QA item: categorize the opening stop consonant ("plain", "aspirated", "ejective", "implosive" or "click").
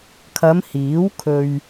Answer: aspirated